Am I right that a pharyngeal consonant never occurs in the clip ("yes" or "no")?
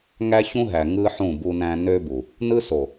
no